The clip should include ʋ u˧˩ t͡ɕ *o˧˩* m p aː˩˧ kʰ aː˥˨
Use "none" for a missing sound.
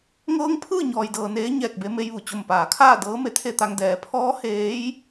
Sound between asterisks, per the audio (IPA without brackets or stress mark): o˧˩